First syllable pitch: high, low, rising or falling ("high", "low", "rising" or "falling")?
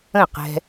falling